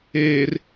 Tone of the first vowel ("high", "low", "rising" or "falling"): low